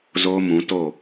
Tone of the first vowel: high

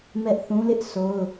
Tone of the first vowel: high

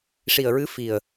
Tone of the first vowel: low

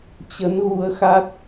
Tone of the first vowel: rising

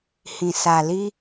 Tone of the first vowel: low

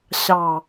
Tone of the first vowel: low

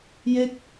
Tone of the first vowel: falling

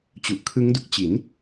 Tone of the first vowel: low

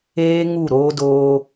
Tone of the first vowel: high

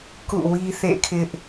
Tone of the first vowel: falling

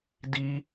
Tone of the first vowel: high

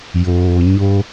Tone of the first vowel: low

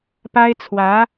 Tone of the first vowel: high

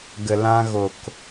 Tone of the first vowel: low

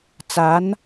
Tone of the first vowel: rising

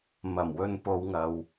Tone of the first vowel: low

